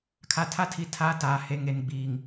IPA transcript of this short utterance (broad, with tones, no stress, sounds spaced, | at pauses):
kʰ a˨ tʰ a˦ tʰ i˨ tʰ aː˦ t aː˨ h e˨ ŋ e˨ n ɡ͡b iː˨ ŋ